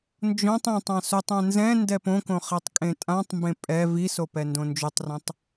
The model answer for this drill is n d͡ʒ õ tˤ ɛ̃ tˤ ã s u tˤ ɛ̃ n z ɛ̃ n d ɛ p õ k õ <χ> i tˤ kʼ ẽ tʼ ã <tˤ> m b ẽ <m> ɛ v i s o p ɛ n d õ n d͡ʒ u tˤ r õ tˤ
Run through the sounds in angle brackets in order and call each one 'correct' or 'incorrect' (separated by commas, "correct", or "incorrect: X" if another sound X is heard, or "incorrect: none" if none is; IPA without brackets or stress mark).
correct, correct, incorrect: pʼ